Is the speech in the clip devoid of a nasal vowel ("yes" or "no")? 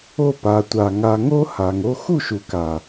yes